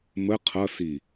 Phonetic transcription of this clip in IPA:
m ə qʰ ʌ s i

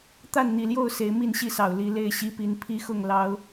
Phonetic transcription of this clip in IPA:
t̪ a˥˨ n n̪ i˨˩ l j o˥˨ ʊ̯ s e˨˦ ɪ̯ m i˥˨ n ɕ i˥˨ s ɑ˨˩ ʊ̯ l i˨˦ l e˥˨ ɪ̯ ɕ i˦ p i˨˦ n pʰ i˦ x ʊ˥˨ ŋ l ɑ˨˦ ʊ̯

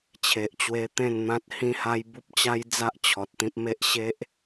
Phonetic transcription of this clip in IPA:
t͡ɕʰ e˨ ʔ t͡ɕ w e˧ t̪ ẽ˥˧ n n̪ ã˦ t̚ h ĩ˦ h a˦ j b u˦ p̚ t͡ɕ a˦ j d͡z a˦ ʔ t͡ɕʰ ɔ˨ t̚ t̪ ĩ˦ p̚ m e˦ ʔ ɕ e˦ ʔ

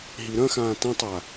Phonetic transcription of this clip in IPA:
ɦ i ɾ ɐ̃ x ãː t ɐ̃ tˤ a

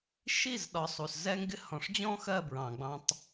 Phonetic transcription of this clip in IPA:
ʃ i˦˨ z ɗ ɒ˨ sˤ u˨ s z ɛ˦ ŋ ɡ ɪ˦ h ɔ̃˨ ʂ d͡ʑ ɔ̃˦ x ɜ˦˨ b ɹ ɑ̃˨ ɡ͡b ɑ̃˦ tˤ

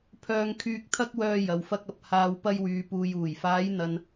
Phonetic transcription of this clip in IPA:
pʰ œː˧ ŋ kʰ yː˧ k̚ t̪ʰ ɐ˥ k̚ w œː˧ j ɐ˨˧ w f ɐ˥ k̚ ɐ˧ p̚ h aː˧ w p ɐ˧ j w yː˨ p uː˨ j uː˨˩ j f aː˨˧ j n̪ ɐ˥ n

